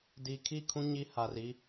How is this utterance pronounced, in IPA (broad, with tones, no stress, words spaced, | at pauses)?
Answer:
di˨kʰi˦˨kʰũ˦ ɲi˦ha˨r i˦